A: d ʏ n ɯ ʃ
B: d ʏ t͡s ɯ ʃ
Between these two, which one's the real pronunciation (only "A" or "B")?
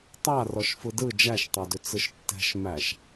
B